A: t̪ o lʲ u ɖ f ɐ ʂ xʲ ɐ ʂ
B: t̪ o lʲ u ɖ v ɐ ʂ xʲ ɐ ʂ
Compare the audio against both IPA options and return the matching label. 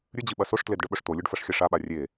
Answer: A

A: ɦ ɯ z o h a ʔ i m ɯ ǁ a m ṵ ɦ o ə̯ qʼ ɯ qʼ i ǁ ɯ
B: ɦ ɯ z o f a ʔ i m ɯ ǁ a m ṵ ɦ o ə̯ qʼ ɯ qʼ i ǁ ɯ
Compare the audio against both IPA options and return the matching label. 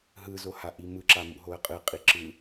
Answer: A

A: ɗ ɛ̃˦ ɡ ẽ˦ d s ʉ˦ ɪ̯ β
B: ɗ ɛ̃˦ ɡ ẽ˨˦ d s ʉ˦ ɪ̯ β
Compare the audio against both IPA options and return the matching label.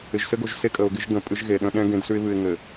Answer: A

